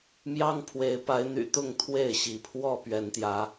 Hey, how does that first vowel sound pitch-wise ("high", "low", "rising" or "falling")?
high